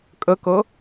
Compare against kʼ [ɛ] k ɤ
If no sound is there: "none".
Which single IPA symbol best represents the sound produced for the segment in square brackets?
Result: ə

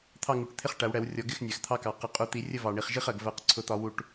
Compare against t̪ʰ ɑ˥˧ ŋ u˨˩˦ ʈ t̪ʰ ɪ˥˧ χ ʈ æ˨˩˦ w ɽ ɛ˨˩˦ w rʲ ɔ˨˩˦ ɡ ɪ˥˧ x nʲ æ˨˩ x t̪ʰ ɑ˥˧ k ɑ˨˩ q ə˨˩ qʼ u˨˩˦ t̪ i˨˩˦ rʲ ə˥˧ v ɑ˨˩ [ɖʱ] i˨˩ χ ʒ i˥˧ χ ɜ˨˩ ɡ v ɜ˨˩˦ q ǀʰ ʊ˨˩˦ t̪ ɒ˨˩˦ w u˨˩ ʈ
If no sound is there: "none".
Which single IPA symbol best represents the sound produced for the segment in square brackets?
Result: ɳ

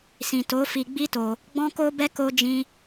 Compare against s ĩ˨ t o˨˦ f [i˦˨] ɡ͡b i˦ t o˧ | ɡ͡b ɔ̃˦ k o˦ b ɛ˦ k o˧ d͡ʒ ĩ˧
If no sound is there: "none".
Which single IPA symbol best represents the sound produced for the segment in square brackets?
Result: i˧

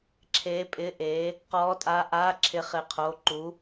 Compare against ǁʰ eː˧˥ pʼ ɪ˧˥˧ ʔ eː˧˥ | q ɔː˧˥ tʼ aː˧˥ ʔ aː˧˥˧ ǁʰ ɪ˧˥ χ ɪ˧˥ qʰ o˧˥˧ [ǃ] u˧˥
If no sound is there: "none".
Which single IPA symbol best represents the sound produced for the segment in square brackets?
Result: ǃ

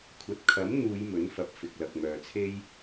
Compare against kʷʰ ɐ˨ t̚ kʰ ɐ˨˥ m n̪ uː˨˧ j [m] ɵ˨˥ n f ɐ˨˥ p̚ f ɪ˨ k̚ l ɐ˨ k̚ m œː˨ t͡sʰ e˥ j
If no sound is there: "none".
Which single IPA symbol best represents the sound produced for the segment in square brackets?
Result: m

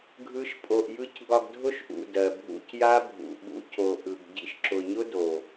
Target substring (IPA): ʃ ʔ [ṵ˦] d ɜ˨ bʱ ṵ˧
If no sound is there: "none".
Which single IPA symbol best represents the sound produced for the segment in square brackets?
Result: ṵ˨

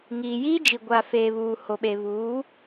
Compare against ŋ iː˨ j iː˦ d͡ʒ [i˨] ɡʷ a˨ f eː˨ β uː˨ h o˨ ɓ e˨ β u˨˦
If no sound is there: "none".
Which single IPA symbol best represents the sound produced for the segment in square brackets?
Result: i˨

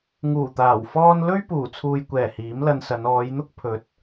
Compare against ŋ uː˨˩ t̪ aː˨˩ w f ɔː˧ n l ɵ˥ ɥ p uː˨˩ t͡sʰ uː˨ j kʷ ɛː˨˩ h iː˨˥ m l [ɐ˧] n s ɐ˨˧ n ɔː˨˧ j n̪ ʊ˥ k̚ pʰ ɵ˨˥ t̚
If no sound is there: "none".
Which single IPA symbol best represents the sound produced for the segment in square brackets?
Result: ɐ˧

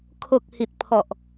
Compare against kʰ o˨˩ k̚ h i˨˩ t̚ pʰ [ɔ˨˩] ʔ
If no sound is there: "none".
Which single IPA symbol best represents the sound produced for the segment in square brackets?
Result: ɔ˨˩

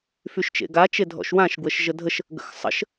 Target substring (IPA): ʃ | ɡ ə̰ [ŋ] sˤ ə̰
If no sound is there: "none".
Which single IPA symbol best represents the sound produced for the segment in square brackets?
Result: x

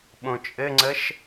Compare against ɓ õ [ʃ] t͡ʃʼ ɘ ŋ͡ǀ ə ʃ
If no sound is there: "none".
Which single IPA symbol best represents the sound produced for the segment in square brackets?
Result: none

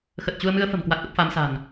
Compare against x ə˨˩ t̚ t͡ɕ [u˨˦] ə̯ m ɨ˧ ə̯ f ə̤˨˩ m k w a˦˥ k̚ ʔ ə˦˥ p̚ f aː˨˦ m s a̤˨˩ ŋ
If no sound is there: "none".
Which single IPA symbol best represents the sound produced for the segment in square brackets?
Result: u˧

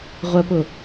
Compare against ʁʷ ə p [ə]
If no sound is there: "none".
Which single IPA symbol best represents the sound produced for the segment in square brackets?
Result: ʊ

